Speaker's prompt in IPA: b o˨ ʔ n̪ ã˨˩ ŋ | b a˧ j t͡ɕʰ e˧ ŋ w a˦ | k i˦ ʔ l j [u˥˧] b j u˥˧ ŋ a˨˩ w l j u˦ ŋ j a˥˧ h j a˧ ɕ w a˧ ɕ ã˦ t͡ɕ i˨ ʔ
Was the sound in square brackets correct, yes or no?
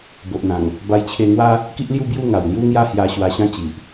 yes